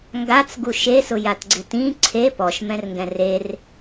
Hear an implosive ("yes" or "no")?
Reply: no